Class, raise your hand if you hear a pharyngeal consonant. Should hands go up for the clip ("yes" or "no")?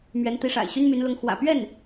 no